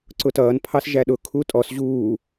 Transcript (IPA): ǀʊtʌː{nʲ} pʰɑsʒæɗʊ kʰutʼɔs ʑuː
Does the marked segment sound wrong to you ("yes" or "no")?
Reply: yes